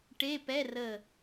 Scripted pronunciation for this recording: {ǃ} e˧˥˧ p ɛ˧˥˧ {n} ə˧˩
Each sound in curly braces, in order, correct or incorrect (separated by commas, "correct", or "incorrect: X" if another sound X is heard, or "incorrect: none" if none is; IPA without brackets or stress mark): incorrect: ʈ, incorrect: r